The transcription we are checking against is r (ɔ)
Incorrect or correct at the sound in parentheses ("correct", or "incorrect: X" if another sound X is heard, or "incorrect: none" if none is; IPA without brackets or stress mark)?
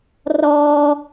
correct